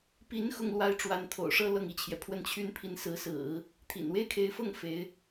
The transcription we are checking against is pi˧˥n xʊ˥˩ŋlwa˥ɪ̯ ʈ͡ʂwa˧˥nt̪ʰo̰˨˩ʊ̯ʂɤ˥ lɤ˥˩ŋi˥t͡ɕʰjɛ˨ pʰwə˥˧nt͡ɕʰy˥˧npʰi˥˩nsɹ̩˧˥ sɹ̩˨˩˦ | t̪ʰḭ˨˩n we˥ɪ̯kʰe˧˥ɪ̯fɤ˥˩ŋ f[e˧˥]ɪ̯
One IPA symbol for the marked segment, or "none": e˧˥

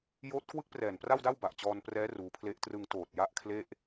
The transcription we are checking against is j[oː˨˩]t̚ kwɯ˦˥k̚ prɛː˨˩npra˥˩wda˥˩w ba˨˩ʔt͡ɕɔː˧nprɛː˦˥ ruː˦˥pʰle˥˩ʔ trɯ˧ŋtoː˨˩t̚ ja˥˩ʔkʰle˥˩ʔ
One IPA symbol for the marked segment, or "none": oː˦˥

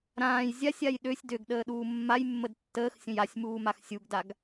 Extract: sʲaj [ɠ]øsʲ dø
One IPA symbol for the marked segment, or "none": ɗ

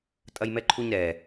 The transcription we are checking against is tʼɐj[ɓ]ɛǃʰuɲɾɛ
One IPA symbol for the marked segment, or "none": m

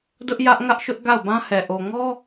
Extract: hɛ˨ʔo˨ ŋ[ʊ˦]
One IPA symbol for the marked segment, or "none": ɔ˦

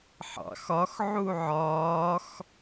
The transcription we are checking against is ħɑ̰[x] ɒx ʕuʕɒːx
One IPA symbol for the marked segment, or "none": x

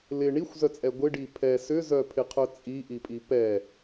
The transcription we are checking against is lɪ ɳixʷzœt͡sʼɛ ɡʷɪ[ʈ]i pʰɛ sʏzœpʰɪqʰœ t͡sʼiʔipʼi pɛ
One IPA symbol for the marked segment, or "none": ɖ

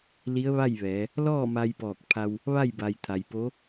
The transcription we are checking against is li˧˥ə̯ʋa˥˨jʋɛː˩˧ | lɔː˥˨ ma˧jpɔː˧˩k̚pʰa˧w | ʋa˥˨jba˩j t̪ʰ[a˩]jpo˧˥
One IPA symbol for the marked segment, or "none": a˩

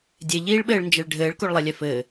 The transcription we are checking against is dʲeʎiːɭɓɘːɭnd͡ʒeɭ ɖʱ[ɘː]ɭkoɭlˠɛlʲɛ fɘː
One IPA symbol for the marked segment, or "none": ɘː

